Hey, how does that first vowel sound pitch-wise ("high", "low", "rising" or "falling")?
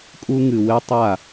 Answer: high